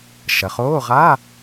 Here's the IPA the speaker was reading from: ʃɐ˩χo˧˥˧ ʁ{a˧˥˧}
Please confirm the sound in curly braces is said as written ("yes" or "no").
yes